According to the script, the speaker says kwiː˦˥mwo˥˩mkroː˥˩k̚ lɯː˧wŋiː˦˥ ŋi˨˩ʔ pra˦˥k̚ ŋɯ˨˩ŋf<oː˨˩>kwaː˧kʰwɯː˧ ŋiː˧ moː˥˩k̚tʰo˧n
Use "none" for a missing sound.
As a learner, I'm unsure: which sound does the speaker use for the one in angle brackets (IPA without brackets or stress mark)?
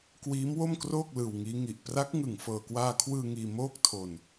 ɤː˨˩